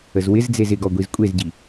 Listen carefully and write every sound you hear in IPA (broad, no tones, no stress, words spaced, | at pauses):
əzwɪzd͡zez ɪɡɔ ɡʷizkʷʼezɟi